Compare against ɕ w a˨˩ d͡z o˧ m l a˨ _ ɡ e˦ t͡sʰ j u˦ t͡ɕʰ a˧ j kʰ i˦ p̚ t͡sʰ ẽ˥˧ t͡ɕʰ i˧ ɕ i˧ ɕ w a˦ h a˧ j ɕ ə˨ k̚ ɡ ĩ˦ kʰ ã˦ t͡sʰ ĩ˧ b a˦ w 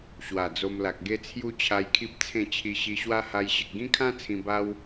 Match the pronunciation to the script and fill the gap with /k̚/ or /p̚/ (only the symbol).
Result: k̚